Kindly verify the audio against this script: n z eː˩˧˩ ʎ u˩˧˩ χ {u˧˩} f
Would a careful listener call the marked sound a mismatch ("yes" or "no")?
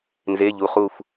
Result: no